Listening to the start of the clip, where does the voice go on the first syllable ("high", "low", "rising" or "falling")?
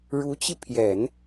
rising